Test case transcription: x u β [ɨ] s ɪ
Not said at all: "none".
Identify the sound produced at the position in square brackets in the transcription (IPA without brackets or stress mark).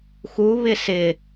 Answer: ɪ